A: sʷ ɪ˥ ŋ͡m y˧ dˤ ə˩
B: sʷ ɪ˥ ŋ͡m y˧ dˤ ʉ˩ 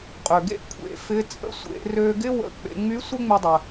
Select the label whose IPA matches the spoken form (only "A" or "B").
A